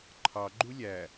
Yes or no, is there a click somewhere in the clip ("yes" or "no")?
yes